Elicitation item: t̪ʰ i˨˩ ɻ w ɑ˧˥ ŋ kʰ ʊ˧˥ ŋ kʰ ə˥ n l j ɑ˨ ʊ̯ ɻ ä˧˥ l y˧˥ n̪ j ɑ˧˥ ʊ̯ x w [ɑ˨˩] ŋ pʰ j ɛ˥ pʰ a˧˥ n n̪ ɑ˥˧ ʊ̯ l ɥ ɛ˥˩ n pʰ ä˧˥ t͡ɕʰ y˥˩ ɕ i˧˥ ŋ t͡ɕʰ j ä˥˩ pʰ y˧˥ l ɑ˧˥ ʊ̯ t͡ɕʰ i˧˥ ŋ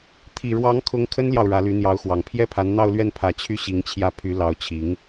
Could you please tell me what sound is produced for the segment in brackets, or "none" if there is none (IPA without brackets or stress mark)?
ɑ˨˩